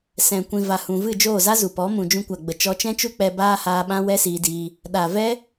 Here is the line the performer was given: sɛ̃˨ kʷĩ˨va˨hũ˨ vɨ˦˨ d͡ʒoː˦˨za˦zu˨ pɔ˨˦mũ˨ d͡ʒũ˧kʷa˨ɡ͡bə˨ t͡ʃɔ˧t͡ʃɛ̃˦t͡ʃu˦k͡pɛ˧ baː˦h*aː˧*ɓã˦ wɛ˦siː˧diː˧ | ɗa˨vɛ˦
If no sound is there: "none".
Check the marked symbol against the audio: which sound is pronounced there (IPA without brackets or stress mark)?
aː˧